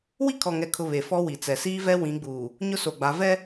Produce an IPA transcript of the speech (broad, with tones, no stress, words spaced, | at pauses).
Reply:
wi˦kʰɔ˨ŋɛ˨kʰʊ˨ βe˨fɔ˦wi˨t͡sɛ˨ siː˦vɛ˦ wĩ˨˦ɡ͡buː˨ | ɲʊ˦so˨ɡ͡ba˨˦ vɛ˦